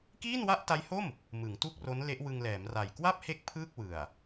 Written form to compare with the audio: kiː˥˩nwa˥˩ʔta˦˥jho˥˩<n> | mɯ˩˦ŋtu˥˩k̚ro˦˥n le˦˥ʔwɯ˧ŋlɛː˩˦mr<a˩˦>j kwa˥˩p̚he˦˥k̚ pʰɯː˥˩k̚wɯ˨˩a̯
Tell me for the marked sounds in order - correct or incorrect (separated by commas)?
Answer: incorrect, incorrect